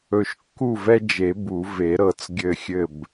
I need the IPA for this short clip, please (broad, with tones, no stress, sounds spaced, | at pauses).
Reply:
ɵ˨˩ ʃ kː u˥˩ v ɛ˦ d͡ʒ e˨˩˦ b u˨˩˦ v e˨˩˦ ɾ ɤ˨˩ t͡s ɡʲ ɘ˥˩ xʲ ɘ˥˩ b